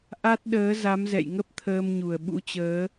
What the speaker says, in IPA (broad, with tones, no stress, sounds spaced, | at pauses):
ʔ a˦˥ t̚ ɗ əː˨˦ z a˨˦ m z ɛ̰˧˨ j ŋ ə˦˥ p̚ t̪ʰ əː˧ m ɲ u˨˩ ə̯ ɓ ṵ˧˥ t͡ɕ əː˨˦